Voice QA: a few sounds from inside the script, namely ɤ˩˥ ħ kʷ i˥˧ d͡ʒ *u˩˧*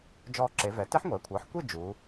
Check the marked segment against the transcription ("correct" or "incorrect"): correct